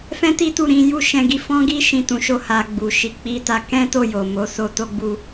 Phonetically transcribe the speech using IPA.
fɛ̃˦ti˦tu˦˨ɾĩ˨˦ ju˦˨ʃɛ̃˧ɡi˧ fɔ̃˦ɡi˦ ʃĩ˦˨tũ˨˦ʃo˦˨ ha˨ ɡ͡bu˨ ʃi˨k͡pi˧ta˧ kɛ̃˦to˦˨ jo˨mo˨˦so˧ to˦ɡ͡bu˦

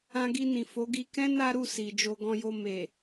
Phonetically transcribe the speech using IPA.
ã˧ɡi˧nĩ˨ fo˨˦ɡi˧kɛ̃˦ na˦ɾu˦˨ si˨ d͡ʒo˧ɡɔ̃˧jo˧ me˨

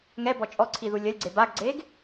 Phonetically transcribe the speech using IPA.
ŋɛbɔ t͡ʃʼɔǀʰiðu lʲɐlʲɡ͡ǀe baɡɡ͡ǀeɡ

